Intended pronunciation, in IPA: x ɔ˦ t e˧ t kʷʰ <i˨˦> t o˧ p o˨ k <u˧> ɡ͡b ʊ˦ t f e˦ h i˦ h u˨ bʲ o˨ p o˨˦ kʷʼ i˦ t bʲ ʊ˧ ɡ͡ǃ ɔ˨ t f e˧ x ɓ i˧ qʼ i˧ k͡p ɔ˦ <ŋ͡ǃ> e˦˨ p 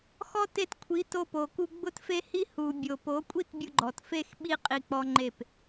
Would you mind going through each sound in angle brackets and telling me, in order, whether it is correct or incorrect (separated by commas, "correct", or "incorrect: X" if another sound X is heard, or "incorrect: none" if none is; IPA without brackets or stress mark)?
correct, correct, correct